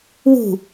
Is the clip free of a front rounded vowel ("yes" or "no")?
yes